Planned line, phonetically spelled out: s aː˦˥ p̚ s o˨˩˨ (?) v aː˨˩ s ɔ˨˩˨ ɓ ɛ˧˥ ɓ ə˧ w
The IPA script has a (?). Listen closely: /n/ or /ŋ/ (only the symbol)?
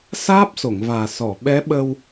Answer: ŋ